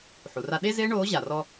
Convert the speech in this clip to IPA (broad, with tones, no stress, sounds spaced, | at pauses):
ħ u˩ r a˥ ɗ e˥ z eː˥ ɳ oː˧˥ ʑ a˩ r ɔ˧